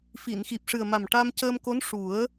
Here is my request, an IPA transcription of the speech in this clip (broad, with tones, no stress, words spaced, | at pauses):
fi˨˩˨nxi˨˩p̚ʂɨ˨˩ə̯ma˨˩m ʈa˧mcəː˧mko˧˥n ʂu˨˩˦ə̯